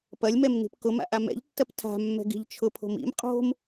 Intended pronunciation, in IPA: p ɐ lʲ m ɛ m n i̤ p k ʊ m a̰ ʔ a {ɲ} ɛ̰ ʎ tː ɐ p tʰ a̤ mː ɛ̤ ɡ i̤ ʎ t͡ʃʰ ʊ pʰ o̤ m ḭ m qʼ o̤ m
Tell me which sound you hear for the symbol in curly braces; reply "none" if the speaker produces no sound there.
m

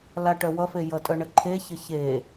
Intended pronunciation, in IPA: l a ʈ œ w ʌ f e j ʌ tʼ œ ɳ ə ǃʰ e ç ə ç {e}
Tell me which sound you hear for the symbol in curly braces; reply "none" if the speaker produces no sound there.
e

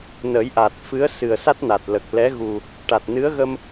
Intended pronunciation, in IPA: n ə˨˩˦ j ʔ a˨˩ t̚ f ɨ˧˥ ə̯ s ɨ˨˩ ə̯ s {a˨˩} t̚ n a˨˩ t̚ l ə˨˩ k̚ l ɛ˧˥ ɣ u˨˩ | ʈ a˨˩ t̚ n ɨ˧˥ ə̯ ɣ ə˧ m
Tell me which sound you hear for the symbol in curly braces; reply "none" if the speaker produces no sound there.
a˦˥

